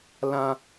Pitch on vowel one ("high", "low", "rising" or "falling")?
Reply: high